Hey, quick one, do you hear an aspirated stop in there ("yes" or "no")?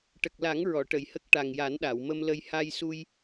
no